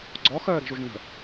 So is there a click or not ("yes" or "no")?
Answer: yes